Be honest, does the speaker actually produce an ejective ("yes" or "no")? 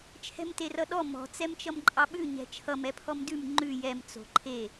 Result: yes